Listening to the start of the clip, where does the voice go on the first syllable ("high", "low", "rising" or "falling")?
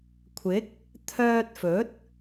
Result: rising